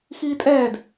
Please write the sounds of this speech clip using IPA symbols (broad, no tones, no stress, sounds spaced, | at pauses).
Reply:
x iː tʼ ɛː d